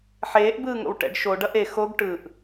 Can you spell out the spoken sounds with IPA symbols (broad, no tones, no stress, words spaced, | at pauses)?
ħeːʔbɯːŋo̰w ʈɛ̰ɖ ʃo ɖʌʔe xoɡ ʈɯʔ